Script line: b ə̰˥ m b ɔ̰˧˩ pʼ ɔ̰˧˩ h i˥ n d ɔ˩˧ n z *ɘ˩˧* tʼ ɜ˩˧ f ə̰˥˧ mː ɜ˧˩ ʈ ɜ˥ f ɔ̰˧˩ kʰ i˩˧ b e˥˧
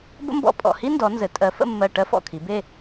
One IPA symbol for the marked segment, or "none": ɘ˩˧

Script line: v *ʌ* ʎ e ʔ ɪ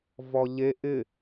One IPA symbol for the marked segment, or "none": ɔ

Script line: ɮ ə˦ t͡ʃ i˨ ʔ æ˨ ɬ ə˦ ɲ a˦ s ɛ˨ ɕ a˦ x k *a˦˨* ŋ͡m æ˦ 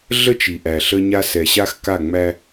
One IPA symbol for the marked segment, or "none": a˦˨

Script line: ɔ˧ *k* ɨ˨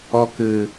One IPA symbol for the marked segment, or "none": k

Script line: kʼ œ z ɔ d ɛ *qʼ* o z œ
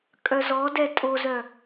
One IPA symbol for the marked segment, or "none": tʼ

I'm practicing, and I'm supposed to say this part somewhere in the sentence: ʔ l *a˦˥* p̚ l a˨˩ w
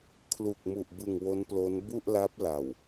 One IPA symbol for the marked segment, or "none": a˦˥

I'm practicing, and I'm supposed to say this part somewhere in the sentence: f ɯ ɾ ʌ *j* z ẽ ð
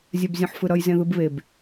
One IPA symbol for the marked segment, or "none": j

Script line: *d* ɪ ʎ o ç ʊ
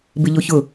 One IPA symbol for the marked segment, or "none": b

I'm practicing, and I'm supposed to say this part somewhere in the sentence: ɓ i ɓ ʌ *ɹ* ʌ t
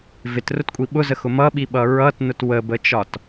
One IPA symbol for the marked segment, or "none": ɹ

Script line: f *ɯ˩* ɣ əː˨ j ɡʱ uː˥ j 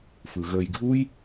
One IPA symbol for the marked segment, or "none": ɯ˩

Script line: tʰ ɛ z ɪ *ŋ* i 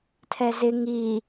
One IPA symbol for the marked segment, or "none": ŋ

